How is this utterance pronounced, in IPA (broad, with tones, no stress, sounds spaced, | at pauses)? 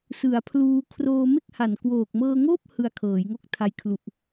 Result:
s ɯ˩˦ a̯ pʰ l uː˧ kʰ r oː˧ m e˥˩ k̚ h a˨˩ n k w oː˨˩ k̚ m ɤː˧ ŋ oː˥˩ p̚ h ɯ˧ a̯ kʰ ɤː˩˦ j ŋ o˦˥ k̚ tʰ a˧ j kʰ l u˨˩ ʔ